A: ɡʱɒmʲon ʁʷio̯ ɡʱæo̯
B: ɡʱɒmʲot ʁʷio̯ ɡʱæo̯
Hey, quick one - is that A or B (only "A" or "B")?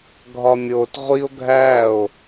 B